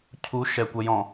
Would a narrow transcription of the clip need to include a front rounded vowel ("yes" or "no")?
no